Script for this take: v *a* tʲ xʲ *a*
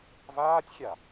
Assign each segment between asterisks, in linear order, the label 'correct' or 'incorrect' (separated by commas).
incorrect, correct